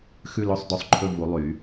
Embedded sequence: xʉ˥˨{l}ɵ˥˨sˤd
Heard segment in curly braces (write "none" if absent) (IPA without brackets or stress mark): l